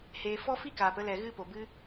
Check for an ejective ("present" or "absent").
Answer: absent